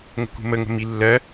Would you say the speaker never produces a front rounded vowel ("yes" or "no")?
yes